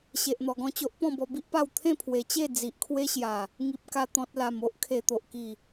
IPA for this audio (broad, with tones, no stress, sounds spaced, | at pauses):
ɕ e˨ ʔ n̪ ɔ˨˩ ɡ ɔ̃˥˧ t͡ɕ o˦ ʔ p ɔ̃˥˧ b ɔ˧ b i˦ ʔ p a˥˧ w t̪ʰ ẽ˥˧ pʰ w e˨˩ t͡ɕ e˥˧ d͡z i˨ ʔ kʰ w e˦ ɕ j a˨˩ | ŋ i˨ p̚ k a˨˩ t̪ ɔ̃˨ t̚ l a˨˩ m o˦ ʔ kʰ e˨˩ t̪ o˨ ʔ k i˨˩